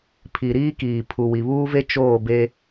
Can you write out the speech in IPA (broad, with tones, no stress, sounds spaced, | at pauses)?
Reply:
pʰ i˨ ɾ iː˦ k iː˨ pʰ u˨ w i˨ β uː˦ v e˦ t͡ʃ oː˦˨ b e˦